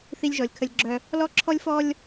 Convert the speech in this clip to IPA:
θ i˦ lʲ ʒ ɔ˨ lʲ kʰ ə˦ lʲ ɡ͡ǁ œ˦ | l ɔ˦ ǁʰ ɔ˦ lʲ f ɔ˦ lʲ

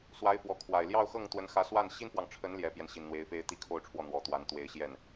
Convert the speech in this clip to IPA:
s w a˧˥ ɪ̯ f w ɔ˧˥ kʰ w a˨˩ ɪ̯ l j ɑ˥˧ ʊ̯ x ɤ˥˩ ŋ t̪ w ə˧˥ n x ä˧˥ s w a˥˩ n ɕ i˥ n f w ɑ˨ ŋ ʈ͡ʂʰ ə˧˥ n l j ɛ˧˥ p j ɛ˧ n ɕ i˨˩ n n̪ w e˧˥ ɪ̯ f e˥ ɪ̯ t̪ i˥ kʰ o˥˧ ʊ̯ ʈ͡ʂʰ w ɔ˥˩ n̪ w ɔ˨˩ t̪ w a˧˥ n t̪ w e˧˥ ɪ̯ ɕ j ɛ˥˩ n

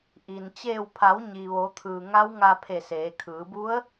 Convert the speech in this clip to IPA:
ʔ i˩ n t͡ɕ eː˧˩ w pʰ a˩˧ w ɲ i˩ ʋ o˩˧ t̪ʰ ɯː˩ ŋ a˧˥ w ŋ a˧ pʰ e˧˩ s eː˩˧ kʰ ɯː˩˧ b u˧˥ ə̯

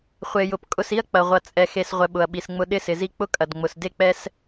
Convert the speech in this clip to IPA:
χʷ e˨ j ʊ˨ p kʼ ʊ˧ s i˦ ɐ̯ k͡p ɐ˨ ʁʷ ɐ˨ t͡sʼ ɛ˨ x e˨ s ʁʷ ɛ˨ ɓ ʊ˨ ɐ̯ ɓ i˨ s ŋ͡m ʊ˧ ɗ ɪ˦˨ s ɪ˨ z i˧ k͡p ʊ˦ kʼ ɐ˨ d ŋ͡m ʊ˨ s d e˦ k͡p ɛ˦ s

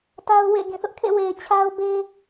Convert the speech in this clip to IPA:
t a˦ ʊ̯ w ḛ˦˨ ɡ ĩ˦˨ θ ʊ˦ ʔ kʰ ḛ˦˨ w e˨ ɪ̯ t͡ɕʰ a˦ ʊ̯ b e˦

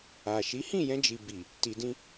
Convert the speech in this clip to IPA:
a˨ ʃ i˨˦ h ĩ˦˨ j ɛ̃˧ d͡ʒ i˨ b i˨ | t i˧ d ĩ˦

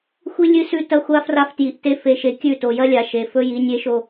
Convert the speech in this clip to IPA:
xʷ i˦ lʲ ɨ˦ s ʉ˦ t ɐ˦ xʷ a˦ f r a˦ f t j i˨ ʔ t e˦ f e˨ ʃ e˨ kʲ ʉ˦˨ t o˨ j ɐ˦ lʲ a˨ ʃ e˨ f ɵ˦ j i˨˦ nʲ e˦ ʃ o˦

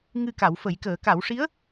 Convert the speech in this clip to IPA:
ŋ ɨ˧ k a˨˩˦ w f ə˨˩˦ j k əː˨˩˦ k a˨˩˦ w ʂ i˧˥ ə̯

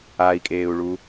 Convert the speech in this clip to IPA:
a i̯ kʼ eː u̯ ɭ u

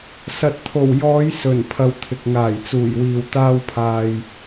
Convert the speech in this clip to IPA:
s ɐ˨ t̚ t̪ʰ o˨˩ w j ɔː˨˧ j s ɵ˨˩ n pʰ ɐ˧ w t̪ʰ ɪ˨ k̚ ŋ aː˨˩ j t͡s uː˨˩ j w iː˨ w t̪ aː˧ w pʰ aː˨ j

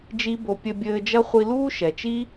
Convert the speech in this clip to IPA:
d͡ʒ i˥ b o˧ pʲ ɘ˧ bʲ ɘː˧ d͡ʒ ɐ˥ χʷ i˧ l uː˥ ʃ ɛ˩ t͡ʃ i˥

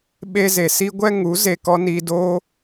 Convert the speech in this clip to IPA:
ɓ e˧ z e˨ s i˦ ɡʷ ɛ˦ ŋ u˨˦ z e˧ k ɔ˦ n iː˧ d oː˦

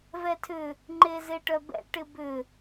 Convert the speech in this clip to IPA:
v ɛ tʰ ʏ | ŋ͡ǃ e z e ʈ œ b ɛ̰ ʈ ɪ b ʏ

